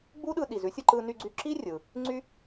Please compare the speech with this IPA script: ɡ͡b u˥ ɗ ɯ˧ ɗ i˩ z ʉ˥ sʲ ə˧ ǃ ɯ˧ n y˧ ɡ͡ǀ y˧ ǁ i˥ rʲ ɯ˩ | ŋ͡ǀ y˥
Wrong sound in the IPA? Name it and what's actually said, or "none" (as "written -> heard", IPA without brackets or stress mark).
none